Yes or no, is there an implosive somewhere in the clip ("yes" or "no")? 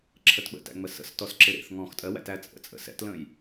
yes